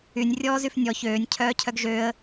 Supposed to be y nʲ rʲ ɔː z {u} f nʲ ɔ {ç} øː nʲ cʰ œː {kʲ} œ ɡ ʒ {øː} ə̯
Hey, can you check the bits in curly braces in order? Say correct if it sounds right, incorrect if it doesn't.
incorrect, correct, incorrect, correct

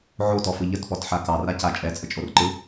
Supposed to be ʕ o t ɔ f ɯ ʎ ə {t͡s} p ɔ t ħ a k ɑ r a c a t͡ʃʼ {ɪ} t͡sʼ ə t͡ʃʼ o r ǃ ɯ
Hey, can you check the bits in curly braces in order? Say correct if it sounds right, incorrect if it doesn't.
incorrect, incorrect

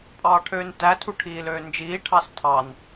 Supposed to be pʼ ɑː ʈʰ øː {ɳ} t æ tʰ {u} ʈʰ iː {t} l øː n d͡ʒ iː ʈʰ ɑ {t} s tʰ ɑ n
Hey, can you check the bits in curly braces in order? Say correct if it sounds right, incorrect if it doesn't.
incorrect, correct, incorrect, incorrect

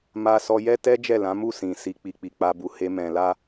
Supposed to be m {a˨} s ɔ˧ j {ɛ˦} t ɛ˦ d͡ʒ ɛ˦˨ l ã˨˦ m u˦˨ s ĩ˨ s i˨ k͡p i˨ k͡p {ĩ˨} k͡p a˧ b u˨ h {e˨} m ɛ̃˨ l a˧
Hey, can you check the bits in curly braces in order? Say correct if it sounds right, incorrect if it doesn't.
incorrect, correct, incorrect, incorrect

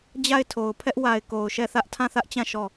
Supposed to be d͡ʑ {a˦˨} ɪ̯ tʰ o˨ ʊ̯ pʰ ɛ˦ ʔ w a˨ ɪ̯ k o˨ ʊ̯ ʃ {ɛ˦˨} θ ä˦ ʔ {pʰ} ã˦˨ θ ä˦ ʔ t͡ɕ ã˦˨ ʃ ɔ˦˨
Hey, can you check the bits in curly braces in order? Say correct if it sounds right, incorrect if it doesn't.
correct, correct, incorrect

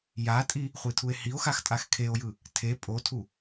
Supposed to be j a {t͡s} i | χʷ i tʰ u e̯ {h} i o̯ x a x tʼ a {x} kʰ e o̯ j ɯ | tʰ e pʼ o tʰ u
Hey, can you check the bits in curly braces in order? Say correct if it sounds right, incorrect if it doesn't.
incorrect, correct, correct

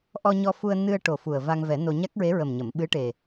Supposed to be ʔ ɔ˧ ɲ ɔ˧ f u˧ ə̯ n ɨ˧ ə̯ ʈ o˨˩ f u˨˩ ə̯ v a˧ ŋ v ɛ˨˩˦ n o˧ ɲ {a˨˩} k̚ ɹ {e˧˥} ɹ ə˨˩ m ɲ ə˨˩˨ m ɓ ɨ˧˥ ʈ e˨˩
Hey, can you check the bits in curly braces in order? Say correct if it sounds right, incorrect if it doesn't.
incorrect, correct

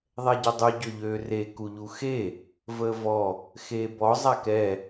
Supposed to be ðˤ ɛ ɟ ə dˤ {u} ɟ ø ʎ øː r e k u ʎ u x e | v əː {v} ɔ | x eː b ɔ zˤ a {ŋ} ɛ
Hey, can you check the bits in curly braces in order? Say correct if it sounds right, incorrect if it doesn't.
correct, correct, incorrect

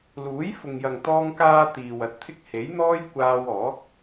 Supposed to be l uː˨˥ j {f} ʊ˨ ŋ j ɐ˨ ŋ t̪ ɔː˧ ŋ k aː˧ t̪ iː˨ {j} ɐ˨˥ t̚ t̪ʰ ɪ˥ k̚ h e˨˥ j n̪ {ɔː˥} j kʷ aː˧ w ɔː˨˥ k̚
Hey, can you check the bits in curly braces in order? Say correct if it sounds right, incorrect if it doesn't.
correct, incorrect, correct

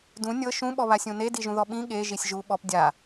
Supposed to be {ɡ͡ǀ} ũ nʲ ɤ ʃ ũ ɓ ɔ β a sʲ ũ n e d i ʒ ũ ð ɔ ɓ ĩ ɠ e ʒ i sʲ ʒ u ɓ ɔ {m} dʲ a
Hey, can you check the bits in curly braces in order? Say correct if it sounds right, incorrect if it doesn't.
incorrect, incorrect

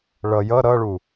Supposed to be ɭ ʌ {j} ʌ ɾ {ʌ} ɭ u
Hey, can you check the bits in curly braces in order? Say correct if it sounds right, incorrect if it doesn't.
correct, correct

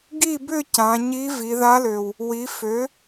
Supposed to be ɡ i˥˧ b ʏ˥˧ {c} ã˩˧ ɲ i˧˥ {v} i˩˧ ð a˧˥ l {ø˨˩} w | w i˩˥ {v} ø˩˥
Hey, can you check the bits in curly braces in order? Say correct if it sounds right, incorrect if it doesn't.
correct, correct, correct, incorrect

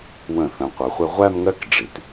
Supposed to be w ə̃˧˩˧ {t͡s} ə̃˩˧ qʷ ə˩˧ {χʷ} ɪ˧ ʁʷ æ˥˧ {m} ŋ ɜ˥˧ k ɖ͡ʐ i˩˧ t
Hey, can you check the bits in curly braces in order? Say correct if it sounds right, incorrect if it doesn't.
incorrect, correct, correct

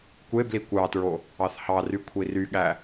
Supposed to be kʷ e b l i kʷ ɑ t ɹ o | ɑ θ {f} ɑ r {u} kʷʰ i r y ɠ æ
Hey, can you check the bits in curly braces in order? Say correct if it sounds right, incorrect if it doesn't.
incorrect, incorrect

